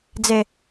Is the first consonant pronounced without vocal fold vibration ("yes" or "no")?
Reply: no